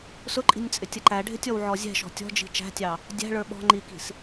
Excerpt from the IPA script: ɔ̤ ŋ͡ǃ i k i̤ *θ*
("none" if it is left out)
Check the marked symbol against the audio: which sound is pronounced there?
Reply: s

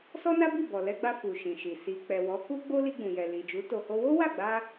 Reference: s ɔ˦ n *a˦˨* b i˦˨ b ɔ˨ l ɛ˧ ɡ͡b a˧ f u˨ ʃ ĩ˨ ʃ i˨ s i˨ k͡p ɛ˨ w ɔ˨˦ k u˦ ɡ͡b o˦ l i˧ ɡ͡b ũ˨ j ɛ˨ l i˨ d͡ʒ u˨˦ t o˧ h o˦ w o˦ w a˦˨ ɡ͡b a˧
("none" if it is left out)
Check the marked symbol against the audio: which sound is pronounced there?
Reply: a˦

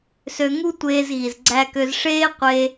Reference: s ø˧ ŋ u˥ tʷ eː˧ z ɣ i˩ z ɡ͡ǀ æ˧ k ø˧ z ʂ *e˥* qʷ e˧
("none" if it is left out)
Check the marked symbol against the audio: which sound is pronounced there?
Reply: eː˥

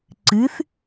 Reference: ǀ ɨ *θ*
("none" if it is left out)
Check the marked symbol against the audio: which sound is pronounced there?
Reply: θ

